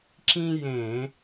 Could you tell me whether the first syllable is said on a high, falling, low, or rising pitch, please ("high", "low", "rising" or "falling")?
high